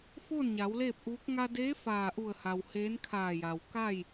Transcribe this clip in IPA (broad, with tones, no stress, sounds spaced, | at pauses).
f oː˥˨ n ɲ a˩˧ w l eː˥˨ p̚ ʔ uː˧˥ k̚ ŋ a˧ d eː˧˥ f aː˧˩ ʔ u˧˩ ə̯ h a˩ w h eː˧˥ n kʰ aː˧˩ j a˩ w k a˥˨ j